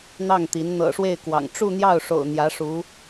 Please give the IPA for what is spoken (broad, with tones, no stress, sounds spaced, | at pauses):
n̪ ɑ˥˩ ŋ t̪ i˧˥ n n̪ ɤ̰˨˩ ʂ w e˥˩ ɪ̯ k w ɑ̰˨˩ ŋ ʈ͡ʂ u˥˧ n̪ j ɑ˥˩ ʊ̯ ʂ o̰˨˩ ʊ̯ n̪ j ä˧˥ ʂ u˧˥